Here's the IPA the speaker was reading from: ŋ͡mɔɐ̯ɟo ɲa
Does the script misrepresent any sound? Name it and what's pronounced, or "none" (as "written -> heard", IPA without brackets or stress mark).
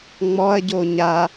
none